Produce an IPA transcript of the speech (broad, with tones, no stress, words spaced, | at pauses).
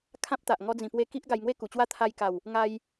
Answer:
kʰã˦p̚t̪a˨ʔ ŋɔ˧d͡zĩ˨˩pwe˧ ki˦ʔ ɡa˧jŋwe˥˧ku˨˩t͡ɕwa˥˧ t̪ʰa˧jka˨˩w | ŋa˧j